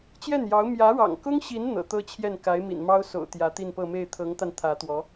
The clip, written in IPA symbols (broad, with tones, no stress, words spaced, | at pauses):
t͡ɕjɛ˥˩njɑ˧˥ʊ̯ mjä˧˥ɻɑ̰˨˩ŋkʊ˥ŋɕi˧˥n n̪ɤ̰˨˩t̪ɤ˥t͡ɕʰjɛ˥˩n ka˧˥ɪ̯mḭ˨˩nmɑ˥ʊ̯ so̰˨˩ʊ̯ t̪jä˧˥t̪i˥˧npɤ˥˧ me˥˩ɪ̯t̪ʰɤ˧˥ŋt̪a˧n t̪ʰä˧˥t̪wɔ˧˥